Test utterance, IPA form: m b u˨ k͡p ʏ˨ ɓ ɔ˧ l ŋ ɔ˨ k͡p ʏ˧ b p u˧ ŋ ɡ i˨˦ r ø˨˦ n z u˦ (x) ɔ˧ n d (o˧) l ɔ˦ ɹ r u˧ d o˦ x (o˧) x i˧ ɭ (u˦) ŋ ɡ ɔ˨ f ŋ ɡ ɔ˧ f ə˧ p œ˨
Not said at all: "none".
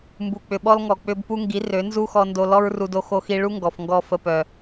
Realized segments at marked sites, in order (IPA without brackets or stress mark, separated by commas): x, o˧, o˧, u˦